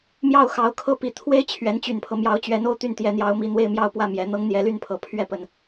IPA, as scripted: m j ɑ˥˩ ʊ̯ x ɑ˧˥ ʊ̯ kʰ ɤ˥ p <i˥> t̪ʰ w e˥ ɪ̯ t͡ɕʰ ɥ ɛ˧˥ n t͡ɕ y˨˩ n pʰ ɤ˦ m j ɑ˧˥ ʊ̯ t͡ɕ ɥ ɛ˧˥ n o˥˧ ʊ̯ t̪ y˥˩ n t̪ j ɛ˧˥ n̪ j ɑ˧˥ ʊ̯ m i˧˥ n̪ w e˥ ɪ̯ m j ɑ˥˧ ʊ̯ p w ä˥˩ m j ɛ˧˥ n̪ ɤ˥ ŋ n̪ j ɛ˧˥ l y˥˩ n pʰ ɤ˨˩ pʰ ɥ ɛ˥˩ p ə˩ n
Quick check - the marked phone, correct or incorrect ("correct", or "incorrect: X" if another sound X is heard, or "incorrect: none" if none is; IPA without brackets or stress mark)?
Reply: incorrect: i˨˩